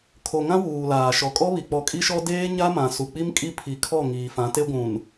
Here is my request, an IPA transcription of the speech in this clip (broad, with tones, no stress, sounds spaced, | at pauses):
kʰ o˨ ŋ ã˦ w uː˨ l aː˨ ʃ ɔ˨ kʼ ɔ˦ β i˨ k͡p ɔ˨ kʼ i˦ ʃ ɔ˦ d eː˦ ɲ a˦ m ã˨ s u˨ k͡p i˦ m kʼ i˦ pʰ i˨ kʰ ɔ˦˨ ŋ iː˨ f ã˨˦ t e˦ ɡʷ ũ˨ n